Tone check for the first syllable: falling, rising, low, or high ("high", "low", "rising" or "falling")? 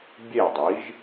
falling